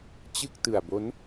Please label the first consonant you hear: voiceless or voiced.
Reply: voiceless